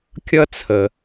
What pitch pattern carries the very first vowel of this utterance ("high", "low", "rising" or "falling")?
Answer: high